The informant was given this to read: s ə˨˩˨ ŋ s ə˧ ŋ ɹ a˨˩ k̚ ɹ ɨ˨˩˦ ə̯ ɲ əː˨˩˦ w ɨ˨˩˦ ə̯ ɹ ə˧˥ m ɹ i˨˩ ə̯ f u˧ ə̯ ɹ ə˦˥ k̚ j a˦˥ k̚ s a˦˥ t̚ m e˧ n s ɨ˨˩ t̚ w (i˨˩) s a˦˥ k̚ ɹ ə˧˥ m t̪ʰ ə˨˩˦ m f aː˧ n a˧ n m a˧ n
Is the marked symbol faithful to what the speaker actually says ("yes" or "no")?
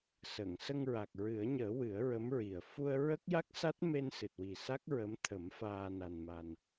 yes